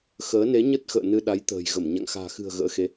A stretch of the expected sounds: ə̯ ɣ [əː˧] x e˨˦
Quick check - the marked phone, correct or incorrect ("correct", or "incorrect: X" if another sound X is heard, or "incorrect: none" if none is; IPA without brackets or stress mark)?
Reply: incorrect: ə̰ː˧˥